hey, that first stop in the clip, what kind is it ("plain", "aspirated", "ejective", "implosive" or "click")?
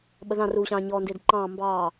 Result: implosive